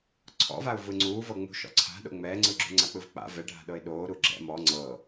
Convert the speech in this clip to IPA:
ǀʰ ɔ̰ v a ʊ̯ v ɯ ŋ͡ǀ uː v ɤ ŋ͡m ṳ ʃ ɔ̰ ǀʰ a̤ ɗ o̰ ŋ͡m ɛː ŋ͡ǀ ɯ ɡ͡ǁ ṳ ŋ͡ǀ a k͡p ɯ v k͡p a̰ v ɛ ɖʱ a̤ ɗ ɤ ɪ̯ ɗ oː ɾ u ɡ͡ǁ ɛ̰ m ɔ ŋ͡ǀ ɤ

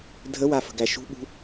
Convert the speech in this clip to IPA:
dʱ ə w a f ə̤ ɡ æ ʃ ṳ ɓ ṳ

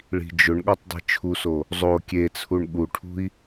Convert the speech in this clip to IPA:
ɭ i̤ d͡ʒ ʊ ɳ ɠ ɔ tˤ dˤ i̤ t͡ʃʰ u s o | zˤ o kʲ e t͡sʰ u ɳ ɠ u ʈʰ ṳ i̯

